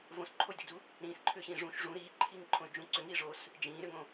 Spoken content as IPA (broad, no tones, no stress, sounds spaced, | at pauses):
v õ s ǃʰ o j d i d͡z u | ɾ ĩː s ǃʰ ʏː ɕ ĩː ʐ ũ ʃ ʐ ũ ɾ iː ǃʰ iː ŋ ǃʰ õ y̯ d͡ʒ ũ ǀ ʏ ŋ iː ʐ o s | d͡ʒ ĩː ɾ ʏ ŋ õ